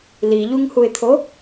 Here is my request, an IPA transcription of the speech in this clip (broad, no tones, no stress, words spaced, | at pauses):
liʎuŋhuɪ̯t̪ʰo